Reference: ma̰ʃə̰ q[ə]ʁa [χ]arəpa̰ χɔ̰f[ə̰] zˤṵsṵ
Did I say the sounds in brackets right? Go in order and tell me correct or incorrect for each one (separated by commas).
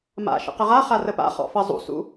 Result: correct, correct, incorrect